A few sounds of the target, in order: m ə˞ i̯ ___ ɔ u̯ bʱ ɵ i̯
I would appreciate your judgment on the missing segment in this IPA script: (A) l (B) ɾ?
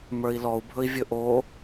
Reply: A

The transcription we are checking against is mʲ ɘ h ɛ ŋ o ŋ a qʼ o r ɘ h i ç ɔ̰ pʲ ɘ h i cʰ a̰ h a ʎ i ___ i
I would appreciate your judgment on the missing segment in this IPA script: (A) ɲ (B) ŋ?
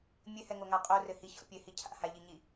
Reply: A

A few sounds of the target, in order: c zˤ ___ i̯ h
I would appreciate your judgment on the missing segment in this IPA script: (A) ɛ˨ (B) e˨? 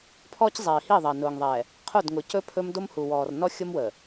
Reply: A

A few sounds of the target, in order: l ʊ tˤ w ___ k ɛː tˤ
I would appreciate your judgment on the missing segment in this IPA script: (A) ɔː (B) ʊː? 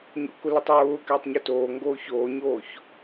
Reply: B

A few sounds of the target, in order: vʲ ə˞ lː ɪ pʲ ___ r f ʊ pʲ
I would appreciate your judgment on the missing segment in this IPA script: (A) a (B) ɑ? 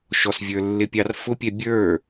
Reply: B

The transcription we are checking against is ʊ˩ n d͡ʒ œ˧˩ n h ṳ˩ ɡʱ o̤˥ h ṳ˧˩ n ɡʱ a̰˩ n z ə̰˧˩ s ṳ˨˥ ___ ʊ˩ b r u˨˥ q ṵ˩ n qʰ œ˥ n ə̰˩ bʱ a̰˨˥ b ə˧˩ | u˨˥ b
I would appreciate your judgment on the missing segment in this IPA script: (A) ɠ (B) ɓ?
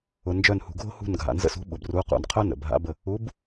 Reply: B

